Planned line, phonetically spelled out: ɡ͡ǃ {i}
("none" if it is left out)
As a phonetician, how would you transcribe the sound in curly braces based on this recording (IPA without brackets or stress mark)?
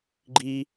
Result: i